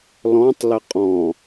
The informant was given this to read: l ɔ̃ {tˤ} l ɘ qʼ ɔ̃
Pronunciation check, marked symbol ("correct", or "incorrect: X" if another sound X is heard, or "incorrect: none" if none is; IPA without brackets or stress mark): correct